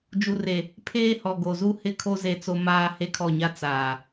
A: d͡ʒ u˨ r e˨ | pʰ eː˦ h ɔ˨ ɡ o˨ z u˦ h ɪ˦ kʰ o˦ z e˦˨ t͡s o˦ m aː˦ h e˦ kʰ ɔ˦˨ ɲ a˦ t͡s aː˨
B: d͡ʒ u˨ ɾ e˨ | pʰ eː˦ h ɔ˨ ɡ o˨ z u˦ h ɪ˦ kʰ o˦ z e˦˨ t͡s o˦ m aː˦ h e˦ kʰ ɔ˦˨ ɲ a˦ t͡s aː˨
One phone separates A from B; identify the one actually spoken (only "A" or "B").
A